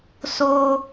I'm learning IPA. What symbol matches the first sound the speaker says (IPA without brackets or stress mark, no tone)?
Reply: s